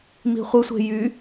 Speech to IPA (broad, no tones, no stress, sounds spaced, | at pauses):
m i̤ χʷ ɪ sʷ e̤ j y